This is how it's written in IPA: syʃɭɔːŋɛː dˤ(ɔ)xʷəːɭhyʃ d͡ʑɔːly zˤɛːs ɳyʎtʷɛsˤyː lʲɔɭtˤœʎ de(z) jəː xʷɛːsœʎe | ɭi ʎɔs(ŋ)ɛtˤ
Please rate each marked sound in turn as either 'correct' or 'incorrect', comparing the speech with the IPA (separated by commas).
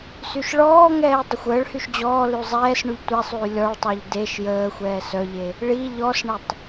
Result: incorrect, incorrect, incorrect